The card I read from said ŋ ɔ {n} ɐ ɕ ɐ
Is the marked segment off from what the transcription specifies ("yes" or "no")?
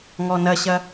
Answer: no